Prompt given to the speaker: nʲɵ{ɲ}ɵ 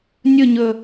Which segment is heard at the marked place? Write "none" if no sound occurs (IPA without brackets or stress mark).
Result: ɲ